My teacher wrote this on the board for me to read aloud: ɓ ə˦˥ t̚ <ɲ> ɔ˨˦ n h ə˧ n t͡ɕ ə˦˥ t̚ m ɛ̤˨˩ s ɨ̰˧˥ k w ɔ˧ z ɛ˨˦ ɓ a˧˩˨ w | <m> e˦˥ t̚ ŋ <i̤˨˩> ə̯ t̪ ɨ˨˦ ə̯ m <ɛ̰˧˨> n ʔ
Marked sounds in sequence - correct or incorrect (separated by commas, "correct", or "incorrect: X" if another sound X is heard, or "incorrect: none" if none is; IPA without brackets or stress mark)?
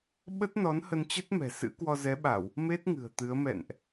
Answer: incorrect: n, correct, incorrect: ɨ̤˨˩, correct